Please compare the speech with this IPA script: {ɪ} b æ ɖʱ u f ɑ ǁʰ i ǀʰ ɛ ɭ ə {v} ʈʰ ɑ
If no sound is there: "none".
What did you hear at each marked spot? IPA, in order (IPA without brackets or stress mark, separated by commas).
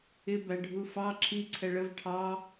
ɪ, v